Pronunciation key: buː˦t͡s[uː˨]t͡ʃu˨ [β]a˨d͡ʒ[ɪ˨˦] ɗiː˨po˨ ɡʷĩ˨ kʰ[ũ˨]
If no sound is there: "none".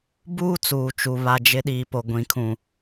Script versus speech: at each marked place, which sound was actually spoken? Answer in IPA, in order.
uː˨, β, ɪ˨˦, ũ˨

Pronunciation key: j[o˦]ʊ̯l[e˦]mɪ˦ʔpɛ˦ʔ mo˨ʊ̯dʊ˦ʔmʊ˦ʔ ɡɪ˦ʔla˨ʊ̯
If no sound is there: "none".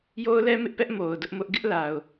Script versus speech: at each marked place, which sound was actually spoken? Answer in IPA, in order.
o˦, ɛ˦

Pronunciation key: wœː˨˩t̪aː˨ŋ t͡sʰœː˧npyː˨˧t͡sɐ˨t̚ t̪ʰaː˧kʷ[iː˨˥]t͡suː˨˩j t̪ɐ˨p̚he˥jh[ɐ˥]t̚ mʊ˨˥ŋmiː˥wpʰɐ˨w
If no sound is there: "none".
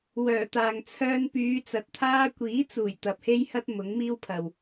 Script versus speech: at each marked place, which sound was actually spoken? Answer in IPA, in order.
iː˨˥, ɐ˥

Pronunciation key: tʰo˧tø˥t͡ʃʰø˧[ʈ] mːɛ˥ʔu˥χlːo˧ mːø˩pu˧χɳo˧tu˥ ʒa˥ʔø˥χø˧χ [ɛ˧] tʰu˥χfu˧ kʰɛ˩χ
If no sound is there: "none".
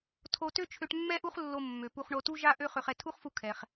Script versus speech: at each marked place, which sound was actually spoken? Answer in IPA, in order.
ʈ, ɛ˧

